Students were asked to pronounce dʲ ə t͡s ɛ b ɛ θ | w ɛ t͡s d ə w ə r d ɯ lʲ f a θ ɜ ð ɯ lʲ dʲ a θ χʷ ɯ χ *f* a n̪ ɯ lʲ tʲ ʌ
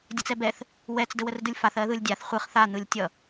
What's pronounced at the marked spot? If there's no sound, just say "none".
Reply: θ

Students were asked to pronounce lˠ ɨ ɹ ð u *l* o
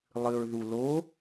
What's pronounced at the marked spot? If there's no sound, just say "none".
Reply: l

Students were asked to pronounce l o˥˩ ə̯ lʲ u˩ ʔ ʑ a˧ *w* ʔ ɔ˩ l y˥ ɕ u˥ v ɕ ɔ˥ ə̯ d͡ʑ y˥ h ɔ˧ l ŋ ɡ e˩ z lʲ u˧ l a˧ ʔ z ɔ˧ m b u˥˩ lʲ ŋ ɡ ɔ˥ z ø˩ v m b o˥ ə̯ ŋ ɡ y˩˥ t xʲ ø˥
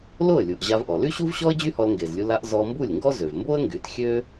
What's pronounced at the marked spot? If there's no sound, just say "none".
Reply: v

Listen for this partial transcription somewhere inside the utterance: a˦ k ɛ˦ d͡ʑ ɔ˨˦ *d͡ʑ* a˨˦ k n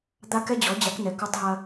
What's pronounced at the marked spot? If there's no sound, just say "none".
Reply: d͡ʑ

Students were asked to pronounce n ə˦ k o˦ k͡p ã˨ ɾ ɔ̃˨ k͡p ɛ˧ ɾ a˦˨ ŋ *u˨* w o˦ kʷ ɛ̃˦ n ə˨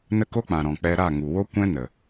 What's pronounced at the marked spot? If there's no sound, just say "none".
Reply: u˨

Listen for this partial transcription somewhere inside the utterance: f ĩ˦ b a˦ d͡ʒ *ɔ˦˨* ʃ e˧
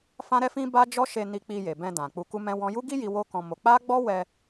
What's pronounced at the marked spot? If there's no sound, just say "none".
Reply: ɔ˦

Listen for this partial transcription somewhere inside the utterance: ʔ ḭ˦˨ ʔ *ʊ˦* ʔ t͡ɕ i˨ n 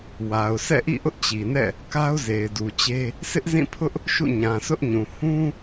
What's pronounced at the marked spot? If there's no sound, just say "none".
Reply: ʊ˦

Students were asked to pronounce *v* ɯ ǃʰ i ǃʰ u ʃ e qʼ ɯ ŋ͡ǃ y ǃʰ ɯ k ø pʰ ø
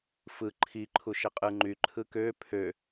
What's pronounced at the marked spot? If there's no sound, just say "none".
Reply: f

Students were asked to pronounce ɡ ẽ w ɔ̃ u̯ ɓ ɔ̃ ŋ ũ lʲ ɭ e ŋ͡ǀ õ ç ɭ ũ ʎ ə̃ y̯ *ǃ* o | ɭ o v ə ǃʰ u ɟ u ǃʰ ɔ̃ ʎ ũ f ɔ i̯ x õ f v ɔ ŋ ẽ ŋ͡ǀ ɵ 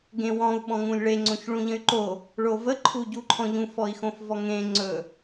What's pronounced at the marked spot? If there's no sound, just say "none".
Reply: ǃ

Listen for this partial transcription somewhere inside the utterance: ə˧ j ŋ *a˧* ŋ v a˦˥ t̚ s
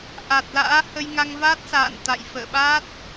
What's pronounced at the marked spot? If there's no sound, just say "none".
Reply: a˧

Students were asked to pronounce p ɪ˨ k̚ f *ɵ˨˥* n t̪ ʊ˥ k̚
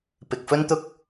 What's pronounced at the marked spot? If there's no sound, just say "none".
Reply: ɵ˥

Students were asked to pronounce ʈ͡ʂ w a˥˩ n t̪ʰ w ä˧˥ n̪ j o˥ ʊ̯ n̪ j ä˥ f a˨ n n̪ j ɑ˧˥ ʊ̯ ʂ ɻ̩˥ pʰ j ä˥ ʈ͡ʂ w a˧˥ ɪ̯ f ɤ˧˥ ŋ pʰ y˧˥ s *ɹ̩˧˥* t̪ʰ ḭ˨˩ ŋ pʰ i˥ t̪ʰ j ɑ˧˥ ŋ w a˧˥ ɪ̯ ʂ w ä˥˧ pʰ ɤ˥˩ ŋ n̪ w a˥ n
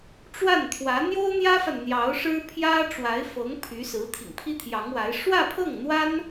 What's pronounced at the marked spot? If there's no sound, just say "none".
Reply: ɹ̩˧˥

